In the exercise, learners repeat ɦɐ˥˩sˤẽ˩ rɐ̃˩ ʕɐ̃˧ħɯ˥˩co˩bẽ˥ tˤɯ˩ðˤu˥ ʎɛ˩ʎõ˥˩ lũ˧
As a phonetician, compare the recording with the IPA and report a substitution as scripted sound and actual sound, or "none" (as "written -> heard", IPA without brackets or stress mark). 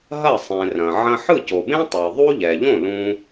none